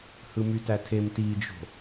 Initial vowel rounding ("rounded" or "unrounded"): unrounded